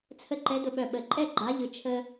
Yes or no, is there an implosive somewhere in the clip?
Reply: yes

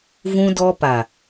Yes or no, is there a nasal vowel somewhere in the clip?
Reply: yes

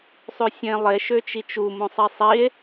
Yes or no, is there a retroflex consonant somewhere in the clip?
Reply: no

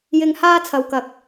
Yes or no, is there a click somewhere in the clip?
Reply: no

